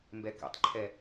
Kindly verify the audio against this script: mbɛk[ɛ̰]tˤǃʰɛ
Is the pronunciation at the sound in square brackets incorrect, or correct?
correct